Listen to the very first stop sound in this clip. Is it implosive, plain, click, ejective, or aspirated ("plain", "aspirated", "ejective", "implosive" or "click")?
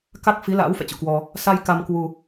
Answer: plain